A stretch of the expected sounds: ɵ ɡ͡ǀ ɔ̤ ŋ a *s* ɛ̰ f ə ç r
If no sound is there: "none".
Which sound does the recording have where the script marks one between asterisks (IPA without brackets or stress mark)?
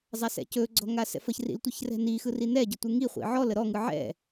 s